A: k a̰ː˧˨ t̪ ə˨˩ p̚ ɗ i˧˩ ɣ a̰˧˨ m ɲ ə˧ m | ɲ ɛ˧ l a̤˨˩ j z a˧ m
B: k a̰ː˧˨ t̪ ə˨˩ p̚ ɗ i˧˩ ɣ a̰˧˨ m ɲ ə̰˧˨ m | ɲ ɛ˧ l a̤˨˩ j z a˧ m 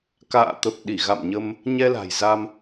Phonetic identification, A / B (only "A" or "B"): A